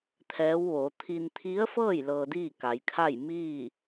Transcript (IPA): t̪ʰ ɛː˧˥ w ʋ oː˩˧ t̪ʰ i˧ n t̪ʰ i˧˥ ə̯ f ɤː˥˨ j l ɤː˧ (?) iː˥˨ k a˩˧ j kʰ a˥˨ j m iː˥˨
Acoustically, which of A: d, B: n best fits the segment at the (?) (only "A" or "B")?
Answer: A